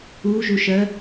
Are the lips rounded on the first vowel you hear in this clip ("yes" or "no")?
yes